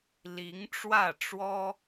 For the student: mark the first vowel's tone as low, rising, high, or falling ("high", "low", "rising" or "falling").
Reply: rising